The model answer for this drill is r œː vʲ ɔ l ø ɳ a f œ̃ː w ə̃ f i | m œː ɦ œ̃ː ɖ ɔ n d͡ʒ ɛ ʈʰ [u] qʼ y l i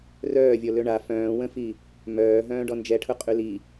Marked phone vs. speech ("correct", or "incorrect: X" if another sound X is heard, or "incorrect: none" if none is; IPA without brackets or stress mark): incorrect: ʊ